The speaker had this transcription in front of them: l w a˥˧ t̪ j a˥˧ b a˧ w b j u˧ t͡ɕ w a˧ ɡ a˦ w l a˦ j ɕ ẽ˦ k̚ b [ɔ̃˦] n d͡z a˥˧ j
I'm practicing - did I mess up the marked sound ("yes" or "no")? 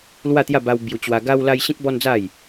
yes